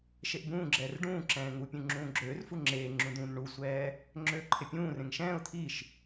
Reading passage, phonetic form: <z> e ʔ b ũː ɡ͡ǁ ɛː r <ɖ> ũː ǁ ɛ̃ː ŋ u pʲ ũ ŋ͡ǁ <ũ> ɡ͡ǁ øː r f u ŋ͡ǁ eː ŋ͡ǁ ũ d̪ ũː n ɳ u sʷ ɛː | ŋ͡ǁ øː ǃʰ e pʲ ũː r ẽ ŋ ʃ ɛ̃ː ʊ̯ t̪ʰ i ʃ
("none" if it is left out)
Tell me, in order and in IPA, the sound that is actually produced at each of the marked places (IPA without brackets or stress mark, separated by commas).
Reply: ʃ, ɖ, ũː